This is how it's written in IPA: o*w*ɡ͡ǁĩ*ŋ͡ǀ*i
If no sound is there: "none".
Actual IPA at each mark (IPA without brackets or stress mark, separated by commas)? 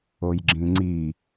j, ŋ͡ǀ